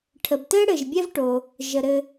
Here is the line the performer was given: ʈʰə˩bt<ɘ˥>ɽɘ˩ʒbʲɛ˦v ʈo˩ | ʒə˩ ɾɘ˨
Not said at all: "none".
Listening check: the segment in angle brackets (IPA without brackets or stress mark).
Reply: ɘ˥